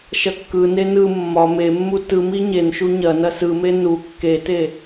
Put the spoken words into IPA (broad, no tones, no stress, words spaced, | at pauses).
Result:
ʃɐkːɯne nɯ mːɒ memːu tɯmi ɲen ʃuɲɐnɐ sɯme nu kːete